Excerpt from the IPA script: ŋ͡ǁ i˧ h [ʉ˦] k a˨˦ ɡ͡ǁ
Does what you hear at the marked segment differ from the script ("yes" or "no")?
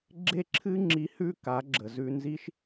no